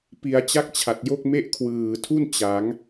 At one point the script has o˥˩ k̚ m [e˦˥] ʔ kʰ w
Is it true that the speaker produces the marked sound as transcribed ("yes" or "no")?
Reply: no